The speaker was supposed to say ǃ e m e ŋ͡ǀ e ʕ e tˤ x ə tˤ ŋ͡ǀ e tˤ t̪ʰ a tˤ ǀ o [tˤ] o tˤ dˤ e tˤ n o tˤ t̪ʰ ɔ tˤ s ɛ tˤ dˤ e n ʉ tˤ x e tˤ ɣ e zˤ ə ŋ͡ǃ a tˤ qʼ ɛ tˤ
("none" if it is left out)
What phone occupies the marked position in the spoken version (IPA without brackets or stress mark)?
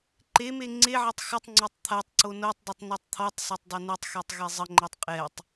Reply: n